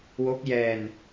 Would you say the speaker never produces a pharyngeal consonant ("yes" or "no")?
yes